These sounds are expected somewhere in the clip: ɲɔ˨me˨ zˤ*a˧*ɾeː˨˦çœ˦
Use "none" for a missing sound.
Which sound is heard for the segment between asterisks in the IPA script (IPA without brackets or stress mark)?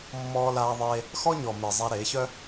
a˧